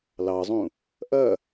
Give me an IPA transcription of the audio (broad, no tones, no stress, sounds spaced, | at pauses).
l ɑ zˤ ũ | ʔ ɐ